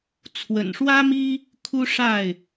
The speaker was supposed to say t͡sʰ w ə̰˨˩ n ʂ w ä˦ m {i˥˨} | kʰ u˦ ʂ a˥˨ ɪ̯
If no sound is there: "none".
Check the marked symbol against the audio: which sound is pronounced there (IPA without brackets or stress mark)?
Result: i˦